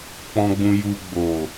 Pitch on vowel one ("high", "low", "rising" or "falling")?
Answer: low